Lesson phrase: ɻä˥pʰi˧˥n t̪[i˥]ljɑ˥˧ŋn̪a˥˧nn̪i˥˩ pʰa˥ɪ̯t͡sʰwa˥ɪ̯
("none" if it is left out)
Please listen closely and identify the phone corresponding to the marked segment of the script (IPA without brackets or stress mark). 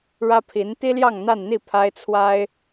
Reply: i˥